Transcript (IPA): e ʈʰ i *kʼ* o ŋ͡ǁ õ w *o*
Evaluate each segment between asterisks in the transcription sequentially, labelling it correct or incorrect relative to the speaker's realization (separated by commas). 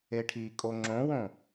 correct, incorrect